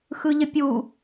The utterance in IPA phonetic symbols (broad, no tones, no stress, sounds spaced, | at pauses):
x ɯ ʎ ə pʲ u